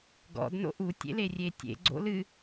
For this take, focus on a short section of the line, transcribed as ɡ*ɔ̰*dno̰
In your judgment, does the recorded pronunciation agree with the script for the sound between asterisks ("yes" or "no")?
yes